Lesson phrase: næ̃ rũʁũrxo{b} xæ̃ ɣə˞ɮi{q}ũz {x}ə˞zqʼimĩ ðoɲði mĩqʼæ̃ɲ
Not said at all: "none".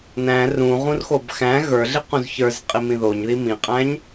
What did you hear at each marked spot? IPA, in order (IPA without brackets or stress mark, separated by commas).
b, q, ç